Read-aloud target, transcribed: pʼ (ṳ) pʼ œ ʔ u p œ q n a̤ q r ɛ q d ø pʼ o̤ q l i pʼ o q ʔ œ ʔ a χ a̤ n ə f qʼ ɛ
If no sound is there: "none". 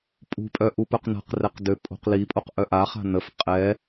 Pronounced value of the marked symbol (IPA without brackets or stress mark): ṳ